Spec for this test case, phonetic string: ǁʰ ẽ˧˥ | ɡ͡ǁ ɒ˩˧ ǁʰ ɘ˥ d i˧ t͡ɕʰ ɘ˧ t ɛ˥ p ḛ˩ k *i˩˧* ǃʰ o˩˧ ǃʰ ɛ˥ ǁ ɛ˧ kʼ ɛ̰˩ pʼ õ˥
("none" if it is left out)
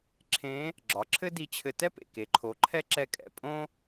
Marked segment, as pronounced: e˩˧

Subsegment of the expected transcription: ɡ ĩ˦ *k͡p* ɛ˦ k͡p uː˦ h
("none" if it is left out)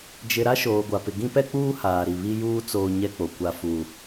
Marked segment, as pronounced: p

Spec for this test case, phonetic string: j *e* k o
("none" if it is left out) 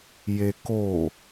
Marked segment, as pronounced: e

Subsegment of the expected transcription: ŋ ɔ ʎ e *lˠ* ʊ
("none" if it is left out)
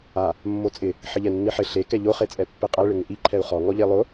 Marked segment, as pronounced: lˠ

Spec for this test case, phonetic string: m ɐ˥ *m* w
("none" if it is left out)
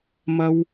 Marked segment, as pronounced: none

